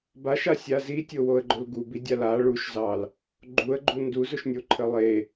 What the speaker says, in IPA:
b a ʃ a sʲ a z i tʲ o w o ə̯ ɡ͡ǃ ʊ l ɡ u b i dʲ a l a ɭ u ʃ z ɑ l | ɡ͡ǃ u ə̯ ɡ͡ǃ u n d u z ʊ ʃ nʲ o ǃʰ ə lˠ e

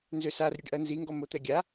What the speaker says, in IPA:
n z ø s a r ɾʲ ɛ ɖ ʔ ɜ n z i ŋ ɡ ɔ m o t̪ ɛ ɡʲ a

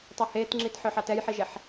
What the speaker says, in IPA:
tˤ ɑ h e t ŋ͡ǁ i t ħ œ ħ ɑ t ɛ j ħ i ʒ e ħ

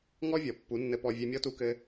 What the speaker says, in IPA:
ŋ ɔ˦ vʲ ɔ˨ pː u˨˦ nː ɘ˧ p ɔ˧ vʲ ɛ˧ mʲ ɔ˦ t u˧ k ɘ˧

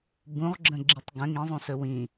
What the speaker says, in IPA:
b ũ ʁ ɡ͡ǁ ə̃ ɡ͡ǁ i tˤ ɡ ə̃ ŋ ĩ zˤ ũ s ɵ w ĩ

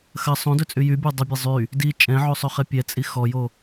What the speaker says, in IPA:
x ɐ sˤ õ d ɵ t͡sʼ y j y bʲ o dˤ ɐ bʲ a zˤ y | d i t͡ʃʼ ɛ̃ ʕ o sˤ ɵ χ ɛ pʲ ɛ t͡sʼ i x ɔ j o

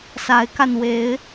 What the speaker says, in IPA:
s a˨˦ ɪ̯ k a˧ n w e˨˦ ɪ̯

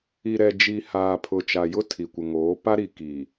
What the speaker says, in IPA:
i˨ ɾ ɛ˨ d͡ʒ i˨ h aː˨ pʰ ʊ˨ t͡ʃ a˨ j ʊ˦ tʰ i˨ kʷ ɪ˨ ŋ oː˨˦ p a˦ ɾ i˨ k iː˨

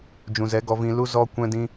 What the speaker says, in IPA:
d͡ʒ ũ˨ z ɛ˨˦ ɡ ɔ˧ v ĩ˧ l u˦ z ɔ˧ kʷ ɛ̃˦ d ĩ˦

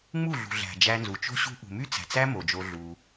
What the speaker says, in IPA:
ŋ͡m u˦˨ ɮ ṳ˨ ɮ æ̤˨ d͡ʒ æ˧ n z u˨ t͡ʃ o̤˦ ɕ ṳ˦ ʔ ṳ˨ m y˦ t͡s æ̤˨ t͡s æ˦ m o˨ d͡ʒ o˧ ɮ u˧

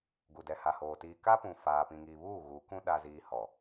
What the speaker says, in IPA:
ɡ u˨ d ɛ˨ h a˨ h oː˨ t iː˨ k a˦ p ũ˨ f aː˨ p ĩ˨ ŋ iː˨ β uː˦˨ ɣ u˨˦ k ũ˦ ɗ a˦ z iː˦ h ɔ˨

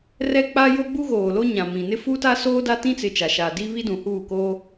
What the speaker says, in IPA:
r ɛ˦ k͡p aː˦ j o˦ ɡ͡b u˦ ɣ oː˨ l o˦ ɲ ã˨ m ĩ˨ n ɪ˦ f u˦ t a˦ s oː˦ d a˦ t ĩ˦ t͡s ɪ˨ t͡ʃ a˨ ʃ aː˨ d i˦ β i˦ d ũ˨ h uː˦˨ k oː˦

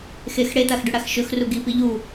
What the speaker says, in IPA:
x e x ɽ e t̪ a x ɖ ʉ ɽ a x ʃ ɵ x r u ɡ i p i ʎ u

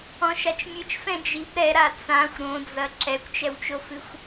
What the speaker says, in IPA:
ɔ̃ ʃ a t͡ʃ mʲ ɨ t͡ʃ f ɛ̃ d͡ʒ i b ɾ ɛ ɾ a t͡s ã xʷ ɾ õ d͡z ɐ ǁ ɛ kʷ t͡ʃ ɛ w t͡ʃ o f ɨ xʷ

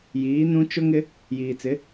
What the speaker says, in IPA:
j iː˨˦ n ũ˦ t͡ʃ ʊ˦ ŋ ɪ˦ | j iː˨ t͡s ɪ˨˦

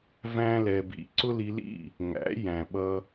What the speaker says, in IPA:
v æ̃˦ l ɛ˧ b ḭ˧ ǀ ʊ˦ l i˧ l ḭ˦˨ | ŋ æ̰˨˦ j æ̃˨ ɓ ʌ˧

